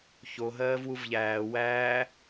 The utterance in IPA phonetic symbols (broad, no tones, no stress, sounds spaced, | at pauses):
ç o ɦ ɜː v w u v ʎ æː w æː